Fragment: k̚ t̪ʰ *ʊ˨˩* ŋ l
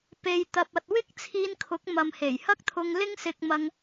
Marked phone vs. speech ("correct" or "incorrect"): incorrect